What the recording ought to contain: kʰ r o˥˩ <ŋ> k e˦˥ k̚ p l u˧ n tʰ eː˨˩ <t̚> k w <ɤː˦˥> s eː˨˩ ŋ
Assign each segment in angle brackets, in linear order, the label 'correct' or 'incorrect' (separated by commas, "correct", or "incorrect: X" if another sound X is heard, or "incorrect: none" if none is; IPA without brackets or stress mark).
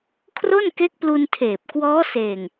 incorrect: n, incorrect: p̚, incorrect: ɔː˦˥